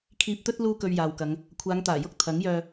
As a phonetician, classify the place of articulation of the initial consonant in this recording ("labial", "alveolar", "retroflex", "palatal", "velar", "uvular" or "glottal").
velar